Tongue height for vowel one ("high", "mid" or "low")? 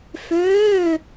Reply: mid